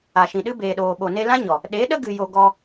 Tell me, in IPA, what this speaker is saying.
a˨ ʃ ĩ˨ ɗ ɨ˦ b eː˨ ɗ oː˨ ɓ o˨ n e˧ l ã˦ ɲ ɔ˨ | ɗ e˨˦ ɗ ə˦ ɡ ɨ˨ j o˨ ɡ ɔ˧

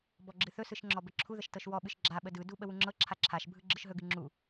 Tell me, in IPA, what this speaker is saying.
b ɔ ɡ͡ǁ ɨ θ ɵ s ɯ ʃ ŋ͡ǁ ɔ b ə ǁʰ u ð ə ʃ t ɤ ʃ w ɔ ɓ ɨ ʃ ɡ͡ǁ a ɓ ə d ɯ d u ɓ ə w u ŋ͡ǁ ɤ ǁʰ a ǁʰ a ʃ bʱ ɯ ɡ͡ǁ ɯ ʃ ɦ ɵ ɡ ɨ ŋ͡ǁ u

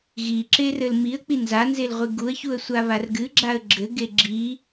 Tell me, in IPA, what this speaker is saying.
ɣ i ǁ e r ɘ l m i ə̯ k͡p i n z a n z e l ʁʷ i ɡ u ə̯ ç u ə̯ sʷ a β a r ɡ ɨ ɡ͡ǁ a ə̯ ɡ͡ǁ ɘ ɡ e ɡ͡ǁ i

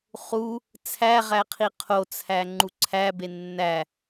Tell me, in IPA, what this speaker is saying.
χ u | t͡sʰ æ ʁ æ qʰ i qʰ o t͡sʰ æ ŋ͡ǃ u ǀʰ æ b e nː æ

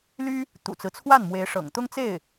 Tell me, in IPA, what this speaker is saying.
l y˥ | t̪ ṵ˨˩ t͡s ɹ̩˦ t͡sʰ w a˥˩ n m w e˧˥ ɪ̯ ʂ ɤ̰˨˩ ŋ t̪ ʊ˥ ŋ t͡s e˥˩ ɪ̯

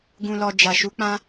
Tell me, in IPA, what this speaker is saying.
ɡ ũ˨ l ɔ˨ d͡ʒ a˨ ʃ u˨˦ k͡p ã˦

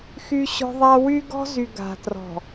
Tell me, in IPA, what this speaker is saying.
x y˦ ɕ ɔ̤˦ ðˤ a˦ w y˦ ɡ ɔ̤˦ z y˨ ɡ a̤˨ t r ɔ̤˨

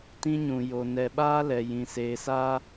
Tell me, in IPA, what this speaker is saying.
t ĩ˦ ɲ ũ˨ j o˨ n ɛ˨ ɓ aː˦ l ɛ˨ j ĩ˨ s eː˨ s a˦

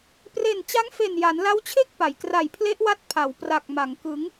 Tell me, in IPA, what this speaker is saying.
p r e˨˩ n t͡ɕ a˦˥ ŋ f e˨˩ n j a˩˦ n l a˦˥ w t͡ɕʰ e˥˩ k̚ p a˩˦ j k r a˨˩ j pʰ l e˦˥ ʔ w a˦˥ t̚ pʰ a˩˦ w p r a˨˩ k̚ m a˩˦ ŋ k ɯ˩˦ ŋ

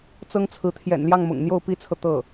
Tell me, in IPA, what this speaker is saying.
t͡s ɤ˥ ŋ t͡sʰ ɹ̩˧˥ t̪ʰ j ɛ̰˨˩ n l j ɑ˥˩ ŋ m ʊ̰˨˩ ŋ n̪ j o˥˩ ʊ̯ p i˥ t͡sʰ ɤ˨ t̪ ɤ˥˩

